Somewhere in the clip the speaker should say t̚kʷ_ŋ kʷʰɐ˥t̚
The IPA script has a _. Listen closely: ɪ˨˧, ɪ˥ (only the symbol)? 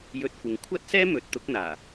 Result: ɪ˨˧